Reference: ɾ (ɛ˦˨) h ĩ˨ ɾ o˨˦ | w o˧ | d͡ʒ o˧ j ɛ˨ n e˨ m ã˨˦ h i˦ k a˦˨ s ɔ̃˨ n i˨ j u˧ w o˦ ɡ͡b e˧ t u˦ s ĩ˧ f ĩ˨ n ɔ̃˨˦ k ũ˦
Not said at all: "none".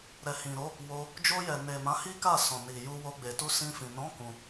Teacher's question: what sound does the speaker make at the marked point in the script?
ɛ˨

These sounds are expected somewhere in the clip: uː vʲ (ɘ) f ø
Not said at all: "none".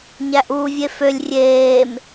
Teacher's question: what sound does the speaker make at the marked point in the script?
e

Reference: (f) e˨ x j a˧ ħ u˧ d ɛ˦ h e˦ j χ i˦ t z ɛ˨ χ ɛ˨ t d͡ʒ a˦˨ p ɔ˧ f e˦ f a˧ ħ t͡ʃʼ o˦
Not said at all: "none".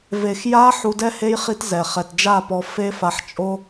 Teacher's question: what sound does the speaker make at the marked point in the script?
v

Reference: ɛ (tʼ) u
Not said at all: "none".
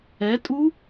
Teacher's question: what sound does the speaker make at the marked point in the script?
tʼ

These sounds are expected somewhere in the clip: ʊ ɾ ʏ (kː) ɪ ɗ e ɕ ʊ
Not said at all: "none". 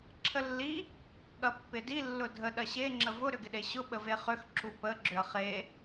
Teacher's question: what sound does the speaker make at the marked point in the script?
ɡ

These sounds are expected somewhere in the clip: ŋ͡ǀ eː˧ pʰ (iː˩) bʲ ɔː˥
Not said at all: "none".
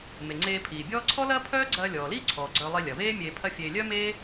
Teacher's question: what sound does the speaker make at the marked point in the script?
iː˩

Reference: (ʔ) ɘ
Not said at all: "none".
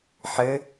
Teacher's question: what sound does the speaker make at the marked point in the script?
ħ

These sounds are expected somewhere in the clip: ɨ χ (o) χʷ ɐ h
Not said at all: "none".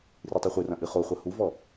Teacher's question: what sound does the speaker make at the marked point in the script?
o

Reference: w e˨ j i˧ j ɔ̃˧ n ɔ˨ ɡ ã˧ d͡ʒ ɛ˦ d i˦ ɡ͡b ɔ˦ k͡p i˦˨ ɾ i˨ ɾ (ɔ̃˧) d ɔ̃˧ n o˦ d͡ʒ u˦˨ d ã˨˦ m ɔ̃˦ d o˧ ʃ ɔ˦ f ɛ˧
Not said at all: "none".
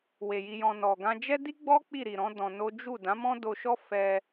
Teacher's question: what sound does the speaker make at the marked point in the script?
ɔ̃˨˦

